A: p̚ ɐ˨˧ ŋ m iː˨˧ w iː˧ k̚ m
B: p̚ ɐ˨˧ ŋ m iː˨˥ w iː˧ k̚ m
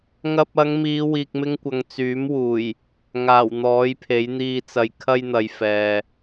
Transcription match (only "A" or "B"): A